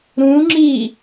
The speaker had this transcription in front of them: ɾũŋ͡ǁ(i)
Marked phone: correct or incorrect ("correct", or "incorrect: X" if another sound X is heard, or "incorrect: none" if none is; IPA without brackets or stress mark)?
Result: correct